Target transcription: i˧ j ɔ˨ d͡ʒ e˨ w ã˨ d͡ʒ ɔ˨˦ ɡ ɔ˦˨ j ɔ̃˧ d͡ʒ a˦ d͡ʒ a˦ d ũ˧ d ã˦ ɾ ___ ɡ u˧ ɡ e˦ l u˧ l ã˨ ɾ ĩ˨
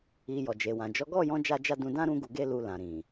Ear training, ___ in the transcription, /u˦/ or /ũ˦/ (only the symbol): ũ˦